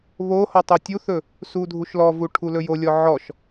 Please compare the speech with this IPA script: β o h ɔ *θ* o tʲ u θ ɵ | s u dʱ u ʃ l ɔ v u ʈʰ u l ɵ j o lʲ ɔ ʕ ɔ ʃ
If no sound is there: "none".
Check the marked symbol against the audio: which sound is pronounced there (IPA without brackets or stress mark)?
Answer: tˤ